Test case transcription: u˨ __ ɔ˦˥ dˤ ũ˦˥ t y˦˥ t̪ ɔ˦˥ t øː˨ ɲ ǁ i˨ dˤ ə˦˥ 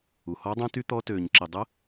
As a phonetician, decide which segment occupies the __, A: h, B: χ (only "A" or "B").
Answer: A